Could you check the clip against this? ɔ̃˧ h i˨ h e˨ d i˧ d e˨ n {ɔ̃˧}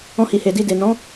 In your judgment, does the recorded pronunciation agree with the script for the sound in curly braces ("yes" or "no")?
no